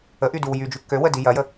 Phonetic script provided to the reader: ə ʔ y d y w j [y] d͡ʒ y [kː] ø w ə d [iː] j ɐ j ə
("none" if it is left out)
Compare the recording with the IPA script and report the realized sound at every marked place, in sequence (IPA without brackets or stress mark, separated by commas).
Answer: y, kː, i